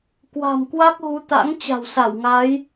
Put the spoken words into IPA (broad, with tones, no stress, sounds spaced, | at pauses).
k w a̤˨˩ m k w a˦˥ k̚ ɣ u˨˦ t̪ a̰˧˥ ŋ t͡ɕ a̤˨˩ w s a˧˩ w ŋ a˨˦ j